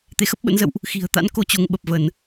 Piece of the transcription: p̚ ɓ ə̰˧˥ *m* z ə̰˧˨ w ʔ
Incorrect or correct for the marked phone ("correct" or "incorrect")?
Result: incorrect